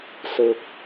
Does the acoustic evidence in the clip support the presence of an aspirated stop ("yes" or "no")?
no